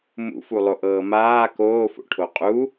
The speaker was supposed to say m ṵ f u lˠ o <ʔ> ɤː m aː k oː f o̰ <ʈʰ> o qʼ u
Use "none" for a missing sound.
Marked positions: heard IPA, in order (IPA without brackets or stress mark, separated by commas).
ʔ, ʈʰ